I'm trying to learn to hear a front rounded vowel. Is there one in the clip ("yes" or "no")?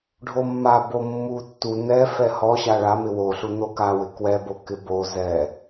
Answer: no